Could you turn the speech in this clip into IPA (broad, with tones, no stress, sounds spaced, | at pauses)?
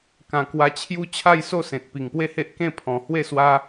k ã˨˩ k w a˧ t͡ɕʰ j u˦ t͡ɕʰ a˥˧ j s o˥˧ s ẽ˨ t̚ p i˨˩ ŋ p w e˦ h e˦ ʔ k ẽ˥˧ pʰ ɔ̃˨˩ h w e˥˧ s w a˦